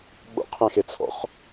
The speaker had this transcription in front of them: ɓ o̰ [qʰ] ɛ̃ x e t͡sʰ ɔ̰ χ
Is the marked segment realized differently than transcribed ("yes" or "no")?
no